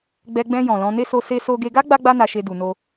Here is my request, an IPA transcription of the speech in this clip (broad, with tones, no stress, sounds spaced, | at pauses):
ɡ͡b ɛ˧ ɡ͡b ɛ̃˧ j ɔ̃˨ l ɔ̃˧ n e˦ s o˦ s e˦ s o˦ ɡ e˧ ɡ a˦ ɡ͡b a˦ ɡ͡b a˦ n a˧ ʃ e˧ d u˧ n o˦